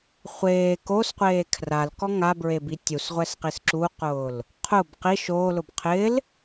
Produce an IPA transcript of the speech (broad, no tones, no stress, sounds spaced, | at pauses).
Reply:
χʷ eː k o s qʷ eː kʰ r a l k ɔ ŋ a b ɹ e b i tʲ u s ʁʷ ɛ s q i s ǁ u q ʊː l | qʰ ʊ b q i ʃ oː l ʊ b qʰ ɪː l